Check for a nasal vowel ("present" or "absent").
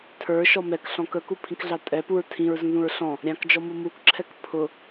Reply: present